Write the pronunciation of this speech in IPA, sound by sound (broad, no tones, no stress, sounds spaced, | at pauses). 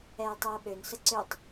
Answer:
ɛː tˤ ɛː ɓ ø n s ə ǀ ø tˤ